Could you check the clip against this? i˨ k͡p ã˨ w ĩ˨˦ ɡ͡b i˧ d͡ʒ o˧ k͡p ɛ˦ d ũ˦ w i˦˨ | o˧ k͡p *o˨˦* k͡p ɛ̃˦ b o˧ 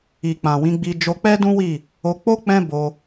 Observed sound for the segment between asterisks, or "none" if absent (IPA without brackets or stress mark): o˦